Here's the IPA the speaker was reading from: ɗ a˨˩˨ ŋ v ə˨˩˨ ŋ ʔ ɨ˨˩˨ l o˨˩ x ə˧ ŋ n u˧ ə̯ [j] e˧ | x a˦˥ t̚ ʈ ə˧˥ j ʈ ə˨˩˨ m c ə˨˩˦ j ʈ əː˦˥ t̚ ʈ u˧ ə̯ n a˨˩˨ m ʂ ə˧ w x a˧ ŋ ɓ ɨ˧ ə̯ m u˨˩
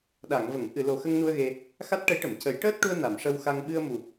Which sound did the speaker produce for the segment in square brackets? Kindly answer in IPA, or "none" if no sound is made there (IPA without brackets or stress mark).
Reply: ɣ